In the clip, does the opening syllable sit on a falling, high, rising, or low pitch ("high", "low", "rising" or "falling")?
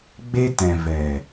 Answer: high